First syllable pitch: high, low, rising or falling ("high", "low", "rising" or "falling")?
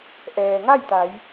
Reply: low